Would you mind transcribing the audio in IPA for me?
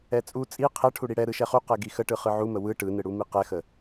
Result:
ɛt͡sʼu t͡sʼi qʰɛ ʈʰuɽiɽɛ ɾɯʃɛχu qɛɡixəʈɯ χɯʕumə wɯ ʈɯnɯɽumi qɛxə

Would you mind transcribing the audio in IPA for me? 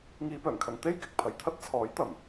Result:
ŋiː˧pœː˨˩ŋkʰɐ˧ŋ t̪e˥jkɪ˨k̚pʰɐ˨jt̪ʰɐ˥t̚ t͡sʰɔː˨˥jt̪ɐ˨˩m

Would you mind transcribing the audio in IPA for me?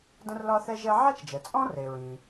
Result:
də̃˥rlɒ˥θɛ˥ʒɛ˥ ʕa˥t͡ʃd͡ʒɛ˩ t͡sʼɔ̃˥re˩ɹĩ˩

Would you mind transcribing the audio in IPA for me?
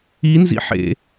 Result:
inzḭ ħḛ

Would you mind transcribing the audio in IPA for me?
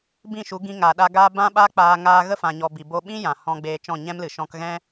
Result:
bĩ˦˨ʃu˨˦ ɡĩ˧ŋa˨ɗa˧ɡa˦ bã˧ɓa˧k͡paː˨ ŋaː˧ɣə˦fã˨ɲɔ˨ bi˨ bo˧ɓĩ˦ jã˨ hɔ̃˧ɡ͡beː˧t͡ʃɔ̃˦˨ ɲɛ̃˦mlɨ˨ ʃɔ̃˧kɣɛ̃˦

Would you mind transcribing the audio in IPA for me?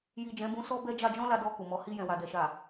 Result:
ji˨ d͡ʒɛ̃˨˦bũ˧ sɔ˦bɛ˦ d͡ʒa˧d͡ʒɔ̃˦la˧dɔ˧ ku˨mɔ˨˦ hi˧jɛ̃˨wa˨ dɛ˨ʃa˨

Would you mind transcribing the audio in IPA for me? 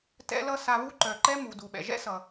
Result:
tɛ̰˦lʌ˦ sa˨βu˦ǃœ˩ǃɛ˦ mu˩ du˩ɓɛ̰˩ʒɛ̰˥sʌ˩

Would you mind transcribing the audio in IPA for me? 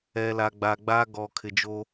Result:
ɛ˨la˨ ɡ͡ba˨ɡ͡ba˦ ɡɔ˨kʰɪ˨d͡ʒo˦

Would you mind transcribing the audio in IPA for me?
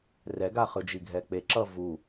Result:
rɛɡaχɯd͡ʒi ɡʱɛk͡peǁʌ vu

